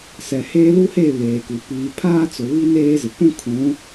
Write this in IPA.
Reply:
s ɛ˨ h eː˦ l u˦ h e˦˨ β eː˨ k u˨ p iː˨ pʰ aː˦ t͡s ʊ˨ β i˦ n eː˦ z ɪ˨ kʷ ũ˦ kʰ ũ˨˦

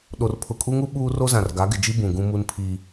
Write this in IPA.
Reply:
ɗ o˨ r pʰ ʊ˨ kʼ u˦ ŋ u˦ ɓ uː˦ r o˦ z ã˨ r ɡ a˨˦ ɡ ɪ˨ d͡ʒ i˦ b ũ˨ ɡ ũ˦ m u˦ n pʰ i˦

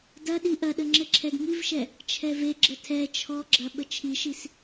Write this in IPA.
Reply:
d ɐ ɗ i ʔ ɐ ɗ ə ŋ͡ǁ ɘ ǁʰ ɛ d ŋ i v ʃ ɛ | t͡ʃʰ ɛ v e ɡ͡ǁ ə tʰ ɛ t͡ʃʰ ɔ ɡ͡ǁ ɐ ɓ ə t͡ʃʰ i ʃ i s

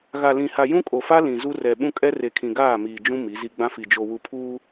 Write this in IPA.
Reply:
ɣ a˨ l ĩ˨ h a˨ j ũ˦ kʼ o˨ f a˦ l ĩ˨ z u˦ r ɛ˨ ɓ ũ˦ kʼ ɛ˦ r e˨ kʰ ĩ˨ ɡ aː˦˨ m iː˨ d͡ʒ ũ˦ m i˨˦ z i˦ ɡ͡b ã˦ f i˨ d͡ʒ o˨ w u˨ pʰ uː˦

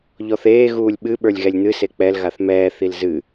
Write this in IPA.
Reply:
ʎ ɔ θ eː ɣ uː lʲ ɓ ɨ ɓ ə˞ lʲ ɣ ɛ lʲ n̪ ɨ s e k͡p ɛ l ɣ a θ m ɛː θ i l z ɨ

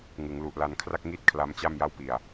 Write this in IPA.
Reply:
ŋ ɯ˩˦ ŋ l u˨˩ ʔ l a˧ n kʰ r a˥˩ k̚ ŋ i˥˩ t̚ kʰ l a˦˥ m t͡ɕ a˥˩ m j a˥˩ w p i˨˩ a̯

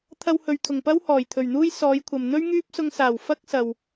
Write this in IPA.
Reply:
t̪ʰ ɐ˧ w h ɵ˨ ɥ t̪ʰ ʊ˨˩ ŋ p ɐ˥ w h ɔː˨˩ j t̪ʰ ɵ˨˩ ɥ n̪ uː˥ j s ɔː˨˧ j kʷʰ ɐ˨ m n̪ ɵ˥ ɥ ŋ yː˥ p̚ s ʊ˧ ŋ s aː˨˩ w f ɐ˥ k̚ s ɐ˨ w

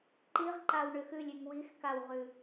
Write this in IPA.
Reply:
ǃ i ʁ ǃ a w ɳ ʏ x ʉ lʲ ʉ ŋ w i x k a w ʁ ʉ

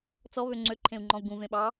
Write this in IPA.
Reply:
t͡s ɔ β ø ŋ͡ǀ ø ǃʰ ẽ u̯ ŋ͡ǃ ɔ̃ u̯ ɡ ũ v ẽ ɓ ɑ

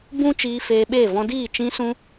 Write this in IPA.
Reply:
b ũ˦ t͡ʃ iː˧ f eː˧ ɓ eː˦˨ v ɔ̃˧ d iː˦˨ t͡ʃ ĩ˧ s ũ˧

